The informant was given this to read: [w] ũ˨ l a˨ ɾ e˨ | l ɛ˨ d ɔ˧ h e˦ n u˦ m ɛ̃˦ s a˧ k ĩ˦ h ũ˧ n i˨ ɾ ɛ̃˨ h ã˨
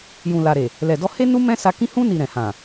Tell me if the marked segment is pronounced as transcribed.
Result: no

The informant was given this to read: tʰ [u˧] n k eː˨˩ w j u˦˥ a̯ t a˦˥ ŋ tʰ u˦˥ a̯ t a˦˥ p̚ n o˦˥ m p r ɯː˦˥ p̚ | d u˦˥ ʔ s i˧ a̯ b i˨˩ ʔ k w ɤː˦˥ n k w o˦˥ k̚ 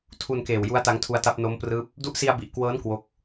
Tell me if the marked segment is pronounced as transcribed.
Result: yes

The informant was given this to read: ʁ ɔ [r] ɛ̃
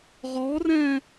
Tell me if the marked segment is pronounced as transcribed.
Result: yes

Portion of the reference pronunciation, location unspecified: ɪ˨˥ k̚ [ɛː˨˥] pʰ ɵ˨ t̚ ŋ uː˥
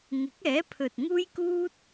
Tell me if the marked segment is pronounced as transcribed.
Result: yes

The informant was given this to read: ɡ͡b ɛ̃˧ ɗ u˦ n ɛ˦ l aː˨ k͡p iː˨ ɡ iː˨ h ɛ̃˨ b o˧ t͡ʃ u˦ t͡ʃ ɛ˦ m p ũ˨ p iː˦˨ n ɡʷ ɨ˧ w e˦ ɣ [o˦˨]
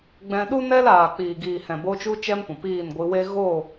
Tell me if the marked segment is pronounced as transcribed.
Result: yes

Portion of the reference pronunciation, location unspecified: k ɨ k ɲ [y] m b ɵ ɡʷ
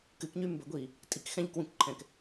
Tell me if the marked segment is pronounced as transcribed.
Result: yes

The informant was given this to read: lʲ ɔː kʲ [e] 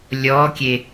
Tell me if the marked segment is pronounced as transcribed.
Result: yes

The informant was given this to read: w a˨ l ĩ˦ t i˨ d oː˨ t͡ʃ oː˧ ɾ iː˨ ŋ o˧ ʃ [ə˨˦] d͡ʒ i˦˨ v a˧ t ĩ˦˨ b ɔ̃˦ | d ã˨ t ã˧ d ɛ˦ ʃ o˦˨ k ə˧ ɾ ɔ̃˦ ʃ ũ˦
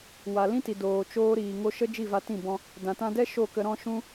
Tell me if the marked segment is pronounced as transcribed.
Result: no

